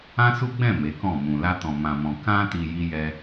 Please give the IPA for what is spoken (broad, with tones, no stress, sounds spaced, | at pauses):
ã˦ s u˦ ɡ͡b ɛ̃˦˨ m e˨˦ k ɔ̃˦˨ m ũ˨ l a˧ t ɔ̃˨ m ã˨ m ɔ̃˨ k ã˧ t i˨ j i˧ j ɛ˧